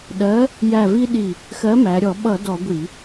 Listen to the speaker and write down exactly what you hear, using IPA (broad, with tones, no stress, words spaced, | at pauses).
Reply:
ɗɜ˨˥ | jæ˧˩vi˦ ɗi˧˩ | xɜ˨˥mæ˩˧ɾʲɔ˧˩˧ ɓʌ˧˩˧ dɔ˧˩˧ɡʷi˧˩˧